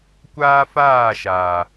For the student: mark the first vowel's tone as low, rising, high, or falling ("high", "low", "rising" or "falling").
high